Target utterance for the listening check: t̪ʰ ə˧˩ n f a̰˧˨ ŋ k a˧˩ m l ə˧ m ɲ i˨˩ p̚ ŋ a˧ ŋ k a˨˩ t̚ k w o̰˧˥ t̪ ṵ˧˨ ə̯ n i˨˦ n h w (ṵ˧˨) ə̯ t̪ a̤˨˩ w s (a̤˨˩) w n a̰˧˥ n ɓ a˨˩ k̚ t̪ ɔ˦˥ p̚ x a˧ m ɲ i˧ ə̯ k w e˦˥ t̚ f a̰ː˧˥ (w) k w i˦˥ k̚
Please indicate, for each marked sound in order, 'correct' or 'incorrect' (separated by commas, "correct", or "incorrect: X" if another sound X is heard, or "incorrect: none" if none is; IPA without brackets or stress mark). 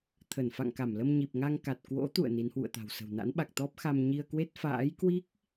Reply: correct, incorrect: ə̤˨˩, incorrect: j